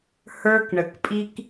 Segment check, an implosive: absent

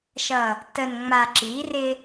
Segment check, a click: present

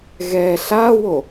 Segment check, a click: absent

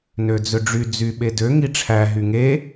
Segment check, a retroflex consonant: present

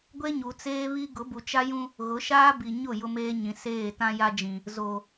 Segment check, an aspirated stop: absent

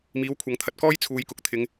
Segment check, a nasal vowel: absent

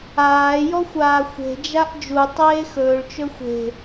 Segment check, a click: absent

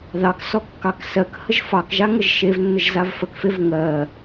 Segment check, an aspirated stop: absent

